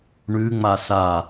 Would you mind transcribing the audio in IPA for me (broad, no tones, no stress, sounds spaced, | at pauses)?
ɳ ʉ ŋ͡m a s a